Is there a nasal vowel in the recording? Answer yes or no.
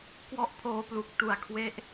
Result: no